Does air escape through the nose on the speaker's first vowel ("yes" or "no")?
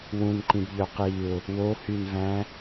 yes